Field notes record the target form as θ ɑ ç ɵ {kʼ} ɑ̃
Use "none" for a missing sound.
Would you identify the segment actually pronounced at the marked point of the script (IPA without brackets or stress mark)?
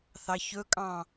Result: kʼ